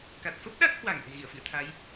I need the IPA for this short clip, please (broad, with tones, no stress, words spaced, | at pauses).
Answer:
ka˨˩t̚fə˦˥p̚ɗa˦˥k̚hwa˧˩ŋ ʔe̤˨˩ɣi˧˩ə̯fḭ˧˨ə̯t̪ʰa˨˦j